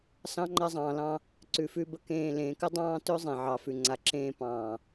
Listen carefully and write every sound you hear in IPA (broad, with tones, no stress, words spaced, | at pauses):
sɑ̃˦ ŋ͡ǃa˧zˤɑ̃ː˨lɑ̃˧ | ǀʉ˧fʉ˦ bə˧kẽː˧ lẽː˨kə˦ dˤɑ̃ː˦tɵ˦ zˤẽ˨ʕɑ˨fʉ˨ ŋ͡ǀa˨ǁẽː˧ pɑ̃ː˨